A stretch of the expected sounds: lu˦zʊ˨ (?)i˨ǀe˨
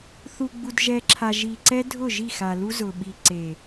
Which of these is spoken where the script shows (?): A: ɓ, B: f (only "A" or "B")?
A